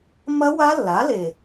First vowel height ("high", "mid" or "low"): low